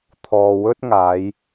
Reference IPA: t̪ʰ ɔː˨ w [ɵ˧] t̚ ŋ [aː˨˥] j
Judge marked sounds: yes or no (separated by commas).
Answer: no, no